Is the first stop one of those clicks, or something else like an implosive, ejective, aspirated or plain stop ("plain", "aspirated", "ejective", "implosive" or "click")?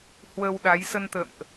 implosive